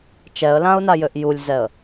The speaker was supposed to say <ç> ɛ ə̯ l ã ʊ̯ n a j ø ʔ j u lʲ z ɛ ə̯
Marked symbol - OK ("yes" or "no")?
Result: no